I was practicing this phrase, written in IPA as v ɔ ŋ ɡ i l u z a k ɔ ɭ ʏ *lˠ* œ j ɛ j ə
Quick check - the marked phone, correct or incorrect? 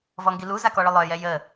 correct